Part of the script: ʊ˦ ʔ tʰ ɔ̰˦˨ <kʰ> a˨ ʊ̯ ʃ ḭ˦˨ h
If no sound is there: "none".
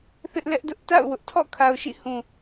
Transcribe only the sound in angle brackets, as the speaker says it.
kʰ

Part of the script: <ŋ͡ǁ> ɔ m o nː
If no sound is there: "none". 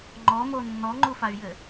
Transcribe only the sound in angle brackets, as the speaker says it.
ŋ͡ǃ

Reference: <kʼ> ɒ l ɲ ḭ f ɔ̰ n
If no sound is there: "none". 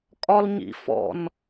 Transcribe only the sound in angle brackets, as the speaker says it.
kʼ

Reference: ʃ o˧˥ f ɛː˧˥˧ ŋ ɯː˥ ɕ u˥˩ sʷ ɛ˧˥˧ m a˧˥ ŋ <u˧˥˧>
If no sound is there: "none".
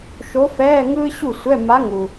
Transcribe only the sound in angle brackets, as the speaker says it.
u˩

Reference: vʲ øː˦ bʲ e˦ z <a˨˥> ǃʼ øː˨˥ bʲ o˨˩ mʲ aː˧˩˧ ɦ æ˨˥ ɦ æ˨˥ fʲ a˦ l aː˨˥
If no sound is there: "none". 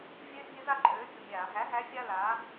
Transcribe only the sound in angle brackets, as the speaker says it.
a˥˨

